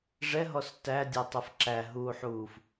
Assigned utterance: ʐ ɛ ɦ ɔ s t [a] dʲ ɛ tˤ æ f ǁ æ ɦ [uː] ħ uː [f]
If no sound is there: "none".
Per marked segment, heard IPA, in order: æ, uː, f

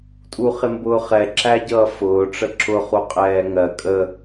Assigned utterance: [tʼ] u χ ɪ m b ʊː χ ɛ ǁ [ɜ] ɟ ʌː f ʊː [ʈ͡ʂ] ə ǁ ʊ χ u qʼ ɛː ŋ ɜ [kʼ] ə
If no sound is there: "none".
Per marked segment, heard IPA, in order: tʼ, æ, ʈ͡ʂ, kʼ

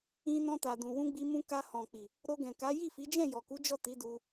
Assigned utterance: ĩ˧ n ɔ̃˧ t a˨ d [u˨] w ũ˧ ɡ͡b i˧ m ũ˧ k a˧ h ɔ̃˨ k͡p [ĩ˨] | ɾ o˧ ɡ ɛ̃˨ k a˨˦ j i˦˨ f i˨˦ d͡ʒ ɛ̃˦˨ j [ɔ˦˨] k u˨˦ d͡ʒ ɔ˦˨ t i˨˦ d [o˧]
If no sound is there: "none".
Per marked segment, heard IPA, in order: ũ˨, i˨, ɔ˨, u˧

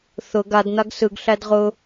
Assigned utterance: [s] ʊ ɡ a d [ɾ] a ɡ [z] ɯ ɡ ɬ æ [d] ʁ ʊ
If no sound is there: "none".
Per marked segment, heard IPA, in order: θ, n̪, s, d

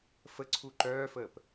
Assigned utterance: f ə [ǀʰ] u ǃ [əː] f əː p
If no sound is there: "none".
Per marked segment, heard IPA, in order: ǀʰ, œː

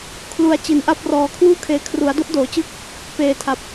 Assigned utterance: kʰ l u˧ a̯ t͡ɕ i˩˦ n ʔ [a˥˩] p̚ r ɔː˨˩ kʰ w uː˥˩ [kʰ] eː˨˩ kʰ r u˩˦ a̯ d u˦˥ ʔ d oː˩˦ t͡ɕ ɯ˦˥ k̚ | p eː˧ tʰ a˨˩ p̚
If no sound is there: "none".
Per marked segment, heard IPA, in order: a˥˩, kʰ

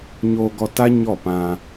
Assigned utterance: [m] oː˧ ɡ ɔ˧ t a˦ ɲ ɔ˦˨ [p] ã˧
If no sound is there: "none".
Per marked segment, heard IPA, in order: ɲ, p

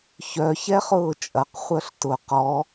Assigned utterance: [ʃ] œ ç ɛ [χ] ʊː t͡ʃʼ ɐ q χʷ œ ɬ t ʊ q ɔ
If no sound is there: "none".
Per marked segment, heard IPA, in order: ç, χ

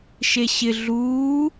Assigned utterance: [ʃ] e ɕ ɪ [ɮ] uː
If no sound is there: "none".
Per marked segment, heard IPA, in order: ʃ, ɮ

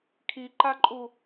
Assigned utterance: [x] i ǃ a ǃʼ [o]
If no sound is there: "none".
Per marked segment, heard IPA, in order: kʰ, u

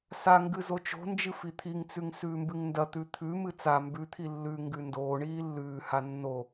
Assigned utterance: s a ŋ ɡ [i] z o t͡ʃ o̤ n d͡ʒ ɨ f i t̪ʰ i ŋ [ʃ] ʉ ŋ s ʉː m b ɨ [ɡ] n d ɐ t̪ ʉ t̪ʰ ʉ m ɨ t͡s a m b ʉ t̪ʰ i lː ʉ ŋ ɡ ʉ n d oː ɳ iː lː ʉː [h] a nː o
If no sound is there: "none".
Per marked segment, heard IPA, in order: ɨ, t͡s, ŋ, h

